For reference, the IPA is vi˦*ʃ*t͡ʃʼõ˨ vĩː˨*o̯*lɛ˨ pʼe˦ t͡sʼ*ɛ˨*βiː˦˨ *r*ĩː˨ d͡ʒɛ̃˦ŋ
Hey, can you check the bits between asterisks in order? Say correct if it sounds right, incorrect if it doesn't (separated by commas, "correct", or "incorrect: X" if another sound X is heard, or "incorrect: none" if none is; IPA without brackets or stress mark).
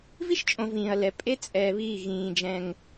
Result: correct, incorrect: ɐ̯, incorrect: ɛː˨, incorrect: ɣ